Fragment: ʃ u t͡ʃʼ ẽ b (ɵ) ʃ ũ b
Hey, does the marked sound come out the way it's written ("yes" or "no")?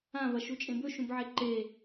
yes